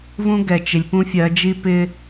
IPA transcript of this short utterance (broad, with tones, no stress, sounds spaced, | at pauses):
v ũ˦ ɡ ɛ˨ t͡ʃ ɪ˨ lʲ p ũ˦ fʲ ɜ˨˦ d͡ʒ i˦ p ɪ˦